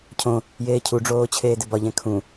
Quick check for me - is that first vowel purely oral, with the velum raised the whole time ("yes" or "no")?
no